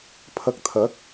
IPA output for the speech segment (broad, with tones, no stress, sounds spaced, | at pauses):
pʰ ɐ˧ k̚ t̪ʰ ɐ˨˥ k̚